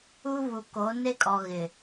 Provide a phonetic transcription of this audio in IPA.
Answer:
u˦ βu˨ko˨˦ne˦kʼɔ˨ ɣɪ˨

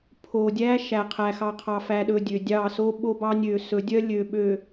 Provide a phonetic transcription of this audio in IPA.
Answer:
pʰo˨dʲæ˦ ʃæ˨ qʰæ˨xɑ˨ qʰɑ˨fæ˨ɗɵ˨ dʲø˨dʲɑ˦˨ so˦ɓo˦bɑ˦ nʲø˨ sɵ˨˦dʲœ˦ lʲø˨ɓø˨

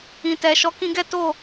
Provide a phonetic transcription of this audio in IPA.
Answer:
ĩ˨tɛ˨ ʃɔ˨˦kĩ˧ɡɛ˦to˦˨

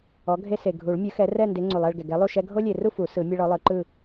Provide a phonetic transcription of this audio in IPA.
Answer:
ɔ˨˥ɡʱe˦ se˨ ɡʱu˨˩˦ɭmʲɯ˨˥xɛ˨˥ rɛ˥˨nde˨˥ ŋ͡ǀu˨lˠɛ˥˨ɭɡɛ˨ ɡɛ˨˥lˠu˥˨ʃɛ˦ ɡʱo˦lʲe˨ru˥˨ fu˨˩˦sɯ˨˩˦ mʲɛ˦ɭɔ˨˥ lˠɯ˨˩˦ǃɯ˥˨

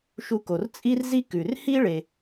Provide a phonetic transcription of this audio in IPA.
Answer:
ʃu˧ko˩r t͡sʼi˥rzi˥ kʉ˩rhi˥ ɭe˧

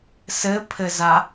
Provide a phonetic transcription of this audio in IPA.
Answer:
sɘpʰɘza

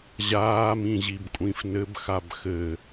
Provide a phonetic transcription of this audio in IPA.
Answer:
ʑaːmĩʑibkʷʼĩf nɘbxab xɘ

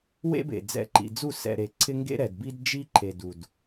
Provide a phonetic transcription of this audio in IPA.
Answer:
wḛ˦bḛ˨ d͡zɛ̰˨ǃḭ˨d͡zu˦˨ sɛ̰˨ɾe˨ǀʰɪ˦ ŋɡḛ˦ɾɛ˨dbi˦d d͡ʒi˦ǃʰe˨d u˨d

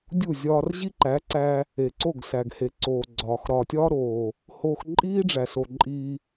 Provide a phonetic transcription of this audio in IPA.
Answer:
dʲu˦˨zʲɒː˧r ʑi˦ǃæ˨˦ǀæ˧ | e˨ǀo˦˨ɡ sæ˨ɡhe˨ ǀoː˨ɡ͡ǀɒː˨x ɾɒː˨tʲɒː˦ɾoː˨ | hoː˧x ǃʼiː˦ɖ͡ʐæ˨so˨ ǃʼiː˧

